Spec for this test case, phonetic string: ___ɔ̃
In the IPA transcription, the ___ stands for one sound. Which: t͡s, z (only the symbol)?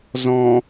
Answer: z